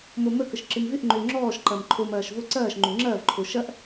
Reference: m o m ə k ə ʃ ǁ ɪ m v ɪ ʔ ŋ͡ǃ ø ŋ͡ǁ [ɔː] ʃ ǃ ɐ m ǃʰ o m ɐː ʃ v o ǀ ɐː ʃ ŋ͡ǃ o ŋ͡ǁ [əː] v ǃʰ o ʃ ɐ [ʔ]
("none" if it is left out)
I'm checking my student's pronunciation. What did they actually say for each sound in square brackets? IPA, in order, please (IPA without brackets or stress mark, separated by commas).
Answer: ɔː, ɐː, ʔ